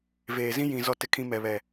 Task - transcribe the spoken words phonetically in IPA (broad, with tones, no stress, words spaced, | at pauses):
veː˨zĩ˦ jĩ˨ zɔ˦tɪ˦kʰĩ˦ mɛ˨βɛ˨